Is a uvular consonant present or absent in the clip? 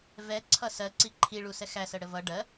absent